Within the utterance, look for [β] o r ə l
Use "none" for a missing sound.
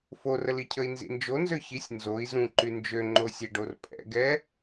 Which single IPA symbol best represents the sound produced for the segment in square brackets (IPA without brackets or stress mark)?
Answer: f